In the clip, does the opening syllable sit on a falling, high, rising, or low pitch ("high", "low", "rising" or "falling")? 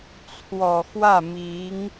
low